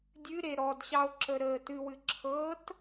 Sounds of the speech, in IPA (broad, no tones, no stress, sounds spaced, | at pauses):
dʲ ɨ ɾ e ɾ ɔ d ɕ ɑ o̯ ǁ ə ɾ əː t ɨ w ɨ ǁʰ ɤ t